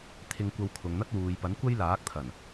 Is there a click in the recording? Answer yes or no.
no